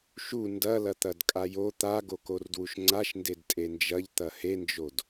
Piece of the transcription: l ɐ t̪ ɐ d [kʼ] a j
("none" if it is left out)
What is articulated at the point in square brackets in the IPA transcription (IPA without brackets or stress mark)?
kʼ